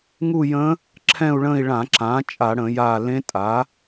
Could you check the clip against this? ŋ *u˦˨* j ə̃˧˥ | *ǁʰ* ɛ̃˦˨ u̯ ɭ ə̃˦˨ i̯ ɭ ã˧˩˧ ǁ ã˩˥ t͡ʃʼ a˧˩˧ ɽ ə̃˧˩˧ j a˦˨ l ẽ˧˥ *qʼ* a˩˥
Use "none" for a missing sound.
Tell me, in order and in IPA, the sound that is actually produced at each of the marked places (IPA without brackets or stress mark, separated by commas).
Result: u˦˨, ǁʰ, tʼ